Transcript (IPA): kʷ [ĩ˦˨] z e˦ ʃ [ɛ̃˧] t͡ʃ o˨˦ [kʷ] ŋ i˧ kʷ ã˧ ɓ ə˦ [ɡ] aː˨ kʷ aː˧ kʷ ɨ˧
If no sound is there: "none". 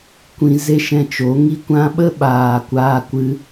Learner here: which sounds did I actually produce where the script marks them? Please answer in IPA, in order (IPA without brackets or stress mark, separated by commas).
ĩ˧, ɛ̃˧, none, ɓ